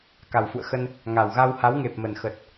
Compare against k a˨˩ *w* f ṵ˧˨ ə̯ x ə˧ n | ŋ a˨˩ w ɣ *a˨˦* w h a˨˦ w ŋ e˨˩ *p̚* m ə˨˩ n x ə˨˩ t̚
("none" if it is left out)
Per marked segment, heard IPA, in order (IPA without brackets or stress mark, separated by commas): w, a˧, p̚